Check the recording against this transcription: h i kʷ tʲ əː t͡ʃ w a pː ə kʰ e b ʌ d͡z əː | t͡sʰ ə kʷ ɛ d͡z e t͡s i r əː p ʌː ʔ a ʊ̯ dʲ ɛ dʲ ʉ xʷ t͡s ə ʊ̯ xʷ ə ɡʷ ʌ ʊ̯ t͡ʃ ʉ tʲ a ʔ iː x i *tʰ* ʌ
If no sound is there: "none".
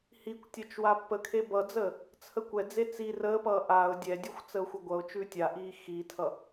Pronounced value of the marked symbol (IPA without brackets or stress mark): tʰ